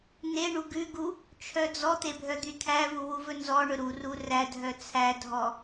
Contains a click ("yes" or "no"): no